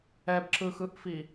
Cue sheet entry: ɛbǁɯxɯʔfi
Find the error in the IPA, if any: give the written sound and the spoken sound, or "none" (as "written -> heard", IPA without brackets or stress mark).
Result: none